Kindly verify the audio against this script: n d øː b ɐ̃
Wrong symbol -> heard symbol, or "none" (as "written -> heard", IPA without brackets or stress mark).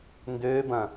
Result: none